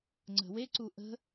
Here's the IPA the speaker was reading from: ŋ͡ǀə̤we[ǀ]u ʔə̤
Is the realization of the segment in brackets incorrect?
no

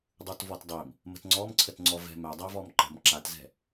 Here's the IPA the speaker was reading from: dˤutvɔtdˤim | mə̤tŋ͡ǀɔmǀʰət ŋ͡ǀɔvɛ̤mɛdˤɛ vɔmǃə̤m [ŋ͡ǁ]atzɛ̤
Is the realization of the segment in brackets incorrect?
yes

